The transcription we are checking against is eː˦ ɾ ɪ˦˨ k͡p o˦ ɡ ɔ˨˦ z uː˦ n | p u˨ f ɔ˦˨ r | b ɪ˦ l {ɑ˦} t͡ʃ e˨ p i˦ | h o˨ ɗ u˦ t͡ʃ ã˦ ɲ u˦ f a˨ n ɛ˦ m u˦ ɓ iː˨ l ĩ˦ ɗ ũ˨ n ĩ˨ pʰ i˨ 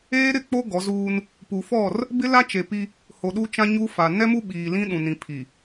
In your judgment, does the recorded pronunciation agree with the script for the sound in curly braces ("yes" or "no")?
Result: no